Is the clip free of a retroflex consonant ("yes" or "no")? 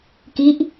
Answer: yes